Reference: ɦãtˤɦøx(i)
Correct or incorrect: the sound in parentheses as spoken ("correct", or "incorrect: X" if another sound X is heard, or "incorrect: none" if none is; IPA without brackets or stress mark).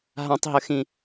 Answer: incorrect: ĩ